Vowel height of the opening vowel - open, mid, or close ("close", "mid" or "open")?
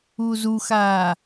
close